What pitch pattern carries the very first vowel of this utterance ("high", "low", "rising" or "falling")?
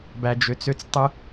low